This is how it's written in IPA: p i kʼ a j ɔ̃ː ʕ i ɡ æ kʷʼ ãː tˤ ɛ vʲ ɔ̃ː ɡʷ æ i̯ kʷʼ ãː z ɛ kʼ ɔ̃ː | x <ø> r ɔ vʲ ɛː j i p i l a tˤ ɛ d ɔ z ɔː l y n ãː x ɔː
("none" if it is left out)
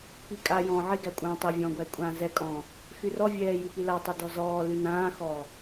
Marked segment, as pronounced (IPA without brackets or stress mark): y